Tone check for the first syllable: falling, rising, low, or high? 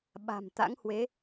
low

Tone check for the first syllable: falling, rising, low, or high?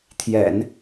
low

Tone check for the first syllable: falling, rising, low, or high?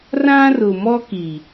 high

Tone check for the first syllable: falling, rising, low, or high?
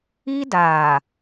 high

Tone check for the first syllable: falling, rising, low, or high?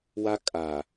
high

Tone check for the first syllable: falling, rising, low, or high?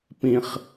low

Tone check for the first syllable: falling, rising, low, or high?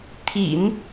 low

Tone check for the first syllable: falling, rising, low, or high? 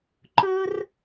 high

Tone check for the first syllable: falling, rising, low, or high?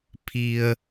low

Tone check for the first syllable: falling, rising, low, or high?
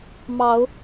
rising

